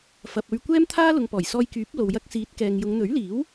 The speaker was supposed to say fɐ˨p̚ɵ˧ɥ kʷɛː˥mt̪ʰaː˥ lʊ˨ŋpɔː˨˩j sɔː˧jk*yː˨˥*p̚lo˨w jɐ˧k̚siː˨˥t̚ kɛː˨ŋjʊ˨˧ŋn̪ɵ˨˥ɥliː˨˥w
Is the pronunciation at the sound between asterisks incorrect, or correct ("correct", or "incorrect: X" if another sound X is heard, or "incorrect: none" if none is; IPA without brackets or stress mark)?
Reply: correct